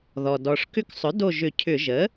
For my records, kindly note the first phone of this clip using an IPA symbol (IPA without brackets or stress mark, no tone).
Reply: ð